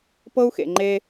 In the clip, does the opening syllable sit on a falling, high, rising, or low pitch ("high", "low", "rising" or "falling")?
high